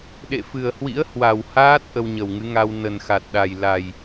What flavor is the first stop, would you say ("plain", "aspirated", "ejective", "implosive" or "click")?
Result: implosive